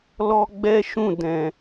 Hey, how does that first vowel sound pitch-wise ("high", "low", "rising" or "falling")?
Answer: high